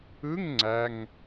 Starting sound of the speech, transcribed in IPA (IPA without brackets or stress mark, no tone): ɯ